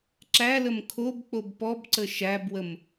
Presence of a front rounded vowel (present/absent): absent